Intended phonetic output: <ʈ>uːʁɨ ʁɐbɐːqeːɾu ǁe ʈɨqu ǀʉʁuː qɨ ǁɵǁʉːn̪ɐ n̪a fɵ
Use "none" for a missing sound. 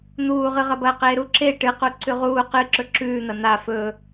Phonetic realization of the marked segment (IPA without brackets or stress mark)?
n̪